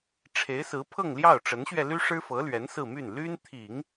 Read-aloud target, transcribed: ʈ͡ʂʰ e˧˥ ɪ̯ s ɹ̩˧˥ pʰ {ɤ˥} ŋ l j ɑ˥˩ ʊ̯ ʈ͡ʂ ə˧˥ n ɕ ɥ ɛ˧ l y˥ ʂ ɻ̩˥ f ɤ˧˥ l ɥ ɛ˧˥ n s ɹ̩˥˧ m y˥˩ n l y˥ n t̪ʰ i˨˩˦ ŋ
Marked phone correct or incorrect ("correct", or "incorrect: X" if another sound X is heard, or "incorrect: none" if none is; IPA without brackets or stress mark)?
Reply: incorrect: ɤ˥˧